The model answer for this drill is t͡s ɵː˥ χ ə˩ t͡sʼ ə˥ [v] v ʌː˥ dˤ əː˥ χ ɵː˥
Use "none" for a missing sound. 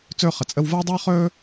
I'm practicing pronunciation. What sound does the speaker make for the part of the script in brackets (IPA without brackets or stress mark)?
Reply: w